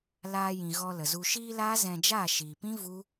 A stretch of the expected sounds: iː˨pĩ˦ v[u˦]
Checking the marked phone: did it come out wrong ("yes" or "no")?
no